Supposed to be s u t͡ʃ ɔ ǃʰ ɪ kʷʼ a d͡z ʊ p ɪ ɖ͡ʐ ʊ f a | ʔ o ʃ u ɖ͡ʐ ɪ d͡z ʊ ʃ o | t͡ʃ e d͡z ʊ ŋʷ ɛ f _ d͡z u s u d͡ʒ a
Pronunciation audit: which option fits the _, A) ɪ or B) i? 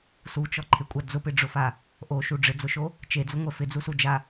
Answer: A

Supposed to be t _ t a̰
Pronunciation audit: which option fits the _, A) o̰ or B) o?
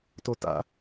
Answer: B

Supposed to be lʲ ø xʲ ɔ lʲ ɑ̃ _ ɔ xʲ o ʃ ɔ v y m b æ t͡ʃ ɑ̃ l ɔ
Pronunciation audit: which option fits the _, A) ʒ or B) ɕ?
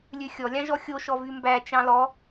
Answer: A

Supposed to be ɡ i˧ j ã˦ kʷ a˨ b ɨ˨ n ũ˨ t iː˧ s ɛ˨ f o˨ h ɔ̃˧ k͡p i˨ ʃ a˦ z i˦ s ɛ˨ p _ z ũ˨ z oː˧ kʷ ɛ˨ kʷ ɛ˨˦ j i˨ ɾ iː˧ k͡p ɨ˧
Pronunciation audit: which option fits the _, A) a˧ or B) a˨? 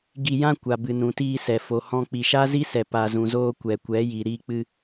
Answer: B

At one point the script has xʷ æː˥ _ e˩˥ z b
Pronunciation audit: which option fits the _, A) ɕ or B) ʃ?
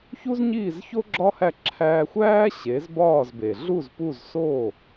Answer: A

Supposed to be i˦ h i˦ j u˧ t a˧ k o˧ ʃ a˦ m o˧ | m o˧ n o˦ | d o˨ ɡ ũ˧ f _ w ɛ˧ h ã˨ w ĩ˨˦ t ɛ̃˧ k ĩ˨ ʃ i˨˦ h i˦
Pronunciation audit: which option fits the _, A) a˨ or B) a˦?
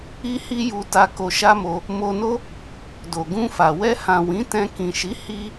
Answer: A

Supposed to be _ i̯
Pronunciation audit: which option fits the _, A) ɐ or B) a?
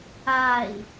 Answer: B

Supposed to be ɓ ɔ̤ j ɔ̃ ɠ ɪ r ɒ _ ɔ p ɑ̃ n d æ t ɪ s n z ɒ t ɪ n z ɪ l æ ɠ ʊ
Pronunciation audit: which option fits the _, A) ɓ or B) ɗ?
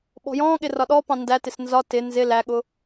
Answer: B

